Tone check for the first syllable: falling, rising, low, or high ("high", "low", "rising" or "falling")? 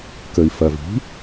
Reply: low